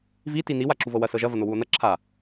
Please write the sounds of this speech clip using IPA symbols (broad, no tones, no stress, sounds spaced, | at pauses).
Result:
v i t i n̪ i w a ǁ u v ɤ w ɐ s ɤ ʒ ɐ v ɐ n̪ o w u o̯ n̪ ɐ ǁʰ a